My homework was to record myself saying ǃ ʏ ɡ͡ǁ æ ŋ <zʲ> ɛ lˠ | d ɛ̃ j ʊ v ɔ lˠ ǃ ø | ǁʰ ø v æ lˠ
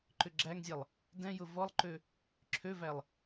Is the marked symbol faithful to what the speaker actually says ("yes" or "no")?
yes